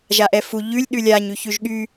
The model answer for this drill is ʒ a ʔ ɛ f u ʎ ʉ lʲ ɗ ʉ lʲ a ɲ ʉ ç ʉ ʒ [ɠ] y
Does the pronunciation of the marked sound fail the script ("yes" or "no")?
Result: no